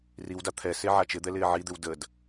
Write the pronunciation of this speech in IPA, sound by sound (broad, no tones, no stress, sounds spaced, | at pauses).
r i w d a t̪ʰ ɛ s e ʕ a t͡ʃ ɪ d̪ ɛ l ɪː ʕ i d̪ ɪ w d ə d